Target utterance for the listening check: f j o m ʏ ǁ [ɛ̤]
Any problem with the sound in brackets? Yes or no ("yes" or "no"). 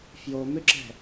no